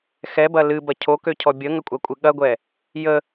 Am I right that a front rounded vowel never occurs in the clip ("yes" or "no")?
no